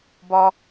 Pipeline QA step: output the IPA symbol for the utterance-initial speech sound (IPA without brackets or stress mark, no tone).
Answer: b